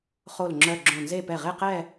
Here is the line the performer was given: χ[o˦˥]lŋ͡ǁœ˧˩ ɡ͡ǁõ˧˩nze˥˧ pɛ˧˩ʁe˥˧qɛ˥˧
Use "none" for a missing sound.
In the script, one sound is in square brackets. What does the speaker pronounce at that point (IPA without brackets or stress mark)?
o˧˩